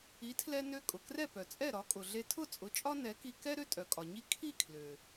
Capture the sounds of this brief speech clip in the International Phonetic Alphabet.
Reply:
i˩˥ tʰ l ɛ˧ n ø˧ kʼ ʊ˩ k r ɛ˥˩ p œ˩ t͡sʼ ɛ˥˩ ɾ ɒ˩˥ kʼ ʊ˩ ɮ e˧ tʰ ʊ˥˩ t͡sʼ ʊ˩˥ t͡ʃʼ ɒ˥ n ɛ˩˥ k i˧ k ɛ˥ ɾ ø˥ tʼ œ˩ kʼ ɒ˩ ɲ i˥ kʰ i˥˩ kʰ l ø˩

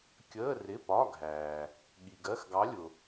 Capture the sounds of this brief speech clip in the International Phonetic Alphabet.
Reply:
kʲ əː˧˥˧ r ɪ˧˥˧ p ɒ˧˥˧ ɡʱ æː˨ | ɠ i˨ ɡ ɜ˧˥˧ x ɡ ɑ˧˥ lʲ ʊ˨

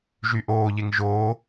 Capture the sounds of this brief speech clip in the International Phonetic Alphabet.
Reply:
ʒ y ʔ oː ʎ e ŋ ʒ oː

